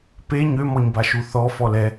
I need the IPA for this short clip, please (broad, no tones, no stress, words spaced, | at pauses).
pe ɲømɔɲbaʃu θɔ fɔlɛ